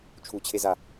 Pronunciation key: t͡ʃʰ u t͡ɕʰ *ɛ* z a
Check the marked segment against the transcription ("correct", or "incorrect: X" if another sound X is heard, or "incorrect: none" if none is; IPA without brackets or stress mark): incorrect: e